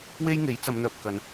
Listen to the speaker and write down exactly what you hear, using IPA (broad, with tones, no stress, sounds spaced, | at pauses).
w e˥ j ŋ e˨˥ j t͡s ɐ˨˧ m n̪ œː˨ p̚ k ɐ˧ n